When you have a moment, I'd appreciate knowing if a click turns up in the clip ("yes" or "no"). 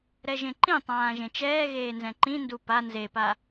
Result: yes